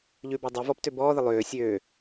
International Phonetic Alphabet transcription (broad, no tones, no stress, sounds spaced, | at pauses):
ʎ ʉ b ɔ dˤ ø v ɔ p t ø b ɔː ð ə lˠ øː sʲ øː